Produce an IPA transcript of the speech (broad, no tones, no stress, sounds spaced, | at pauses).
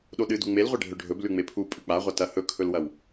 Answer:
ɗ o ɗ ɨ d u ŋ͡m e l ʁʷ e ɖʱ ɵ ɖʱ ɵ b l ʉ ŋ͡m e pʰ u pʼ ʉ k͡p a ʁʷ ɐ t ɐ h ɵ kʰ ɵ l w ɐ w